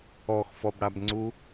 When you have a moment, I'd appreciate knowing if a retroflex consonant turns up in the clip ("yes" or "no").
yes